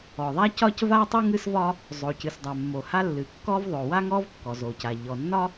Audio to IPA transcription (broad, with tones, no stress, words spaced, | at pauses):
ɔ˩ðˤa˥cɒ˥c va˥tˤɨ˥ ŋɨ˥svɒ˥ | zˤo˩cɨ˩sdˤa˩ mːo˩ha˥ lːɨ˩kːɔ˥vðˤo˩ wa˥ŋɔ˥v kːɔ˩zo˩ca˩ ʎɔ˩ nːɒ˥